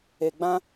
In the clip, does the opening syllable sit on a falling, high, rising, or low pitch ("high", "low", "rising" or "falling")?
low